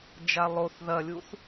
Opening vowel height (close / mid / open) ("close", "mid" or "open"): open